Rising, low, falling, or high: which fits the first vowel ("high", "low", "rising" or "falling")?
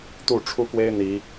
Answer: falling